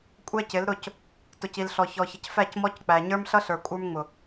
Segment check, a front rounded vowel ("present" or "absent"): absent